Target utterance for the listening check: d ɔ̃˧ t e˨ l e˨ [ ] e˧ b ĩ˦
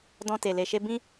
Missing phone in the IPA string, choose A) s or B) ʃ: B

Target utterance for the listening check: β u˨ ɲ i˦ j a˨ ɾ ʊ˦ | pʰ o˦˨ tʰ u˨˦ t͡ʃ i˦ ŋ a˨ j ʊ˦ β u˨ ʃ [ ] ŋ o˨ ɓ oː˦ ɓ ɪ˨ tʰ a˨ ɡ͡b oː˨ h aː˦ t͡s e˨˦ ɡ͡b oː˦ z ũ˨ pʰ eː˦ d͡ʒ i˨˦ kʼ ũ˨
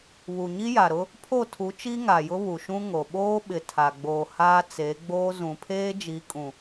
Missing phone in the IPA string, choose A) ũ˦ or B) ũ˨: A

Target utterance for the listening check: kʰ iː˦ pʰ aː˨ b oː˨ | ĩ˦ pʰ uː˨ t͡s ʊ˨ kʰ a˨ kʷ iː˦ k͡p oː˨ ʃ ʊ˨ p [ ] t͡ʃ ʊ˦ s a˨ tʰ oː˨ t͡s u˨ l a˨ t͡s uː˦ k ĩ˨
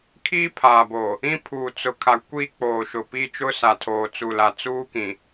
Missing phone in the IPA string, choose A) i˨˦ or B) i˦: B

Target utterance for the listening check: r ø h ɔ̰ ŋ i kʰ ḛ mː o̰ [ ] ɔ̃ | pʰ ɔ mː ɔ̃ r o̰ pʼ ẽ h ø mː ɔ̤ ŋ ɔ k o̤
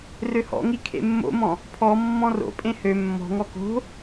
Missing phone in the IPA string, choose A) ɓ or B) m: B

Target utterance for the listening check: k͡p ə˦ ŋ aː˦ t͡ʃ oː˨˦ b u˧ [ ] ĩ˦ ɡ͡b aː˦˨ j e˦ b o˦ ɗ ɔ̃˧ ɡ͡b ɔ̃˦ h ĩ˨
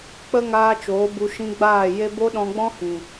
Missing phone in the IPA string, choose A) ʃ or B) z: A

